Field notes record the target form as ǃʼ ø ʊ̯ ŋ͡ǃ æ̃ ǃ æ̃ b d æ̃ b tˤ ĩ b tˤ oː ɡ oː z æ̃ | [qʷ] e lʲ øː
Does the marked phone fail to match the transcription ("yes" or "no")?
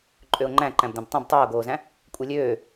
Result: yes